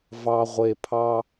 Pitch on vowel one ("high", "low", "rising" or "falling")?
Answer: low